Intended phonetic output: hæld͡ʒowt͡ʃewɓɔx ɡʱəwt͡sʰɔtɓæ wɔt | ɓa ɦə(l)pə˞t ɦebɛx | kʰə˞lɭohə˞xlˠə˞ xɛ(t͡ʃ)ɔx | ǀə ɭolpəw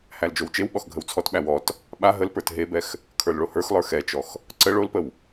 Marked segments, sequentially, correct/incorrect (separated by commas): correct, correct